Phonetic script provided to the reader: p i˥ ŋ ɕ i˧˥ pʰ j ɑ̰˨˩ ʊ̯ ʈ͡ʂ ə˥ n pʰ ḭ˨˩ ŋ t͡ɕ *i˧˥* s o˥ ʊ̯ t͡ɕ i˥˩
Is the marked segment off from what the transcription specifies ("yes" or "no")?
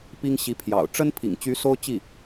yes